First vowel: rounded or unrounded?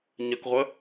unrounded